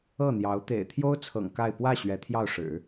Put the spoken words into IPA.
ɤ˥˩ n̪ j ɑ˧˥ ʊ̯ t̪ ḛ˨˩ ɪ̯ t̪ʰ j o˥ ʊ̯ t͡sʰ ɤ̰˨˩ ŋ k a˥˧ ɪ̯ p w ä˥˩ ɕ ɥ ɛ˧˥ t̪ʰ j ɑ˥˩ ʊ̯ ʂ ɻ̩˨˩˦

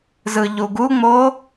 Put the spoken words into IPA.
z ɯ ʎ u ɡ u ŋ͡m o

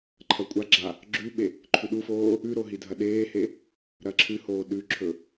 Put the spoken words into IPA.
ǃʰ ɐ kʷʼ a ɡ͡ǁ a | ɡ͡ǁ ʉ ɓ e | ǃʰ ʉ ɗ u f oː | ʉ ɾ o ɦ i dʱ ɐ ɗ eː h e | ɾ ɐ ǁʰ ɨ h oː ɗ ʉ ǁʰ ɵ

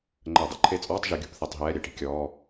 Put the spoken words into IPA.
ŋ͡ǃ əː˧˩˧ dˤ ṵ˨˥ ǃʰ e˧˥˧ t͡sʼ ɔː˧˥˧ tˤ ʒ e˨˥ ɡʲ ṳ˧˩˧ p θ ɛ˧˩˧ tˤ ɦ ɛː˧˥˧ ɾʲ ɛ˧˩˧ ʈ i̤˨˥ kʲ ɔː˧˥˧

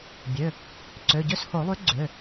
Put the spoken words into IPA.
bʲ ø˩˧˩ | ǀ ø˩˧˩ ɟ ø˥˧ s h o˨˩˦ lˠ y˨˥ ɡ͡ǀ ø˩˧˩

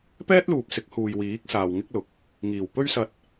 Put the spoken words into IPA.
p ɛː˥ t̚ l uː˨ p̚ s ɪ˨˥ k̚ h uː˨ j w iː˨˥ k̚ s aː˨ w ŋ ɪ˥ k̚ l ʊ˨˥ k̚ | ŋ iː˨˩ w p ɵ˥ ɥ s ɐ˧ t̚

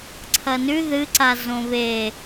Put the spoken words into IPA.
ǀʰ ɐ n ʉ ð ɨ ǀ a z õ β e

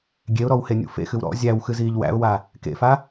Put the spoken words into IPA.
ɡʲ e ʊ̯ ɾ ɔ w h e nʲ ṵ f ḛ x ɨ w ɾ ɔ̰ zʲ æ w x ɨ z iː ʎ w æ̰ ʊ̯ w a | k ḛ f a

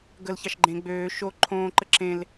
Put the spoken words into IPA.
ɡ ə l ç ɑ ʃ ɡ͡ǃ ẽ ɡ͡b øː ʃ o ǃʰ õː ǃ ə ǁ ẽ l

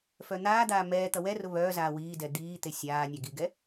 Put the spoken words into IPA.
f œ n̪ aː d̪ aː m ɛː t̪ ʌ w ɛ r ʊ β œː z aː w iː d ɛ d̪ iː t̪ e sʲ aː nʲ a ɡ i ɡ ɛ

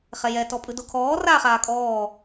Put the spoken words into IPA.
χ ɛ j ɛ t ɔ pʼ ɯ d o kʰ ɔː r aː χ aː kʼ ɔː

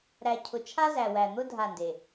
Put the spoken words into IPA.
ɾ æ˨ cʰ ʊ˨ t͡ʃʰ a˦ z æ˨ w æ˨ n̪ ʊ˦ dʱ a˦˨ n d e˨

